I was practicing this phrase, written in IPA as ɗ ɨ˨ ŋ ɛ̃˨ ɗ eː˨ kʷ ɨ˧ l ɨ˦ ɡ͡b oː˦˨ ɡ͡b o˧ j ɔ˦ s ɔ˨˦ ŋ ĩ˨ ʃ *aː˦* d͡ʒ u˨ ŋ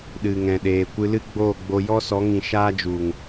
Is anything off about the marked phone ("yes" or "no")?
no